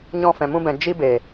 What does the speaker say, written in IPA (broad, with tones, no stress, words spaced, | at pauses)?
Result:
ɲɔ̃˧fɛ̃˨mũ˧bɛ̃˨ d͡ʒi˦be˨